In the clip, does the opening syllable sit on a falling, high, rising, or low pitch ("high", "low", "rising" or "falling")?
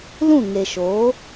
falling